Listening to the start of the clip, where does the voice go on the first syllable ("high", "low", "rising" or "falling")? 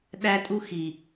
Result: high